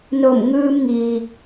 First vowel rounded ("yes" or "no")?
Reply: yes